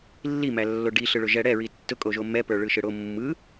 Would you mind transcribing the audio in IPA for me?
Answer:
lː i m æ lː o ɖ i ɬ ɯ ɭ ʊ ʒ ɛ ɽ ɛ ɹ i tː ʊ kʼ o ʒ o m ɛ p ə˞ ɭ ɯ ʃ ɯ ɽ o mː ɯ

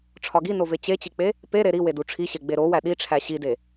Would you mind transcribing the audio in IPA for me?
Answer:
ʈ͡ʂʰ ɒ ɡ i n o v e t͡ɕ e t͡ɕ i k͡p e | p e ɾ e ɾ i w e d u ʈ͡ʂʰ i ɕ e ɡ͡b e ɾ o w æ ɗ i ʈ͡ʂʰ æ ɕ i d e

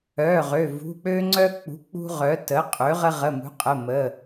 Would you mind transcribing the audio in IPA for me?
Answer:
œ˩˧˩ ʁ ø˩˧˩ v ṳ˩˧˩ k͡p ø˦ ŋ͡ǀ œ˦ k͡p ṳ˩˥ k͡p ṳ˦ ʁ œ˩˥ t ə˩˥ qʼ ø˩˥ ʁ ə˦ ʁ ə˩˧˩ m ṳ˩˥ qʼ ə˩˧˩ m ə˩˧˩

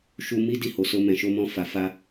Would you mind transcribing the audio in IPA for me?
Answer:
ʃ u˧ m i˦ d i˦˨ h o˨ s o˧ m ɛ̃˨ ʃ o˧ m ɔ̃˧ f a˨ f a˧

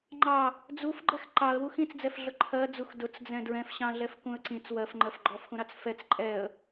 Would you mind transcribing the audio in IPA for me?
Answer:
ŋ͡ǃ ɑ | d͡z u f ɡ͡ǃ ɛ x ǃ ɑ ə̯ w u x ĩ t͡s d͡z ɛ f ɮ ʊ ǃʰ ɜ d͡z u x d ʊ t͡s d͡z ɛ̃ d ɹ ɛ̃ f ɕ ɑ̃ ɮ ɛ f k ũ ə̯ ǀ ĩ t͡s w ɜ f ŋ͡ǃ ɜ f ɡ͡ǃ ɔ f x ũ ɾ ɑ t͡s f ɛ t͡s ǃʼ ɛ ə̯

